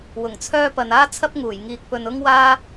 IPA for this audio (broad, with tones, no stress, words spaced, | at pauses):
wʊ˨˩ŋ t͡sʰœː˥pɐ˨n aː˥t͡sʰɐ˥p̚ŋuː˨˩j ŋiː˨k̚pɵ˨nʊ˥ŋwaː˥